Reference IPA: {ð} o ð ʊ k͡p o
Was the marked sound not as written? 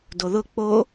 yes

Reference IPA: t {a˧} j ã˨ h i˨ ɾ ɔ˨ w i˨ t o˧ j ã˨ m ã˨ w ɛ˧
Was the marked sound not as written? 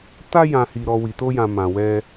no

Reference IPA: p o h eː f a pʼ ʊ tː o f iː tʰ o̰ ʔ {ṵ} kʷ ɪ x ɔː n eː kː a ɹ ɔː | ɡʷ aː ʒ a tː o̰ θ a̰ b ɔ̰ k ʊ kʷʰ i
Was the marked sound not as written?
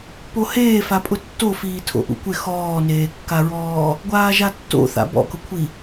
no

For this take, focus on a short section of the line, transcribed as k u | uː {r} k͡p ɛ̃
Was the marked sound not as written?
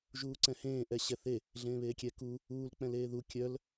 yes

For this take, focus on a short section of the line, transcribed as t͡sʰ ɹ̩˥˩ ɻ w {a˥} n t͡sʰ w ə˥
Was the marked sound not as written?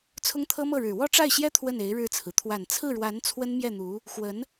yes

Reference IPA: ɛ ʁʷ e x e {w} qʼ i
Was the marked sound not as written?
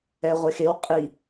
no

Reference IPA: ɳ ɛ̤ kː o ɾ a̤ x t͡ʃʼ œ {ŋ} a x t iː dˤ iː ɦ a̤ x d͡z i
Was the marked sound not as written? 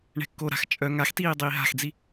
no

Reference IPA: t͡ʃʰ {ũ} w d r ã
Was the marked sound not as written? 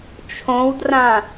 yes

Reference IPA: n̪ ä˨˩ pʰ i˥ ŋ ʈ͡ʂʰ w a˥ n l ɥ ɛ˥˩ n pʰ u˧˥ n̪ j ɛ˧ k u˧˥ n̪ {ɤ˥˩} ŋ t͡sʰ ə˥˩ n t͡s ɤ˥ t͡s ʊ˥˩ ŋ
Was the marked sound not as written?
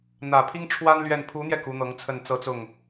yes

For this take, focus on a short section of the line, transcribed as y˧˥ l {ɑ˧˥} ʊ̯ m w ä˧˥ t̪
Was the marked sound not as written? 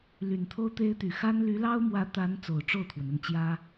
yes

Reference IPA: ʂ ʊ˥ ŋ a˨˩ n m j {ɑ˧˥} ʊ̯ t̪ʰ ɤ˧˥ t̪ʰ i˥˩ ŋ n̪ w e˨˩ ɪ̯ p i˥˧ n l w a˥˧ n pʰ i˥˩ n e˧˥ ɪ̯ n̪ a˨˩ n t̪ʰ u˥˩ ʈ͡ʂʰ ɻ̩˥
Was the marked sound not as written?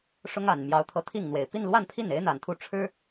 no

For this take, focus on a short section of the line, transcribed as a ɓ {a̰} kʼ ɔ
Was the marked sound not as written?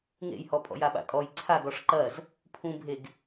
no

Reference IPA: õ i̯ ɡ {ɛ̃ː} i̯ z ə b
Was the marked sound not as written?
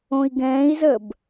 no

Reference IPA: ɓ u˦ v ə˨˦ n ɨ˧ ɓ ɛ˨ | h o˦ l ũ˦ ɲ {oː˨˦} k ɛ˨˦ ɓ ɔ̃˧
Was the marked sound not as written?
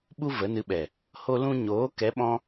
no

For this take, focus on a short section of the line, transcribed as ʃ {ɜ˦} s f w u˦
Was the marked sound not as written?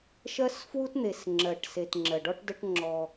no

